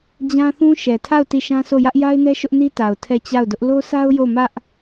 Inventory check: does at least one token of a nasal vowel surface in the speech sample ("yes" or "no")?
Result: yes